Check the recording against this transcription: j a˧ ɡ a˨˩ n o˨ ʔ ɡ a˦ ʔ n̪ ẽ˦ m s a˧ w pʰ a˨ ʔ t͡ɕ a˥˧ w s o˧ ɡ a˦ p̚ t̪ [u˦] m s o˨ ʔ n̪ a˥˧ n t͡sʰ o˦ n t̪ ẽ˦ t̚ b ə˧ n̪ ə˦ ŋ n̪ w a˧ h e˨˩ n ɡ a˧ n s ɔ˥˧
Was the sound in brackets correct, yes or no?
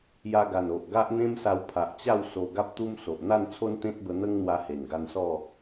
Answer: yes